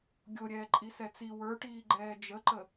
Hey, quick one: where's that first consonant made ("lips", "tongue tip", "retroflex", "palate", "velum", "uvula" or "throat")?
velum